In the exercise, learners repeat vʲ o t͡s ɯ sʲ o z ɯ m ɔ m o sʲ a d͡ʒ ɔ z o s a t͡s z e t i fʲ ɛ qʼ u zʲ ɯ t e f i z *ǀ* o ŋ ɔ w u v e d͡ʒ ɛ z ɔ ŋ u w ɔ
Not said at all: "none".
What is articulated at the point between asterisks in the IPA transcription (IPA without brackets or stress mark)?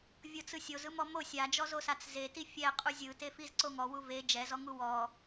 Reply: ǀ